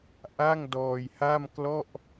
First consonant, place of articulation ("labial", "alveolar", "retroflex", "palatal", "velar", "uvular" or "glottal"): glottal